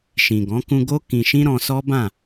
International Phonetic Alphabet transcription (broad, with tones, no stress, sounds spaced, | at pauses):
ʃ ĩ˨ ɡ ɔ̃˨˦ k ũ˧ ɡ o˦ k ĩ˧ ʃ ĩ˦ ɾ ɔ̃˧ s ɔ˦ b ã˦˨